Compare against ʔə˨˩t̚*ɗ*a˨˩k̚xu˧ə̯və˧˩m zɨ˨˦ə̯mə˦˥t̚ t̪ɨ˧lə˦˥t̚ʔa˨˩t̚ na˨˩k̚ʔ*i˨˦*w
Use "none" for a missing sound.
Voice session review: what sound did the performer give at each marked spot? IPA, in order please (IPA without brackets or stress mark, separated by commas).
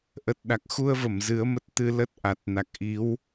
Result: ɗ, i˨˦